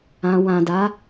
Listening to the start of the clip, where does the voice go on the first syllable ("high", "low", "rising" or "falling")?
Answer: low